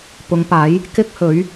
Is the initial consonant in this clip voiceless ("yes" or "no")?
yes